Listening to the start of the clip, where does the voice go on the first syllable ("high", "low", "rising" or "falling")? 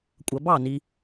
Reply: low